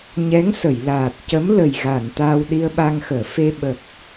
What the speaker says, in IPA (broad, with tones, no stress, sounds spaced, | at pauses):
ɲ ɛ˧˥ ŋ s ə˨˩˨ j l aː˨˩ t̚ c ə˧˥ m l ə˨˩ j ɣ a˨˩˨ n t̪ aː˧ w ɗ i˧ ə̯ ɓ a˧ ŋ x əː˨˩˨ f e˧ ɓ ə˨˩ k̚